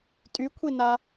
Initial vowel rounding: rounded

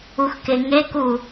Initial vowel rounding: rounded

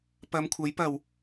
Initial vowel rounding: unrounded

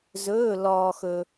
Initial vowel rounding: rounded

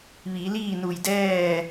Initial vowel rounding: unrounded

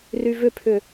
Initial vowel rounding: rounded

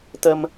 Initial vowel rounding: unrounded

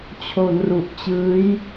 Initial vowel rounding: rounded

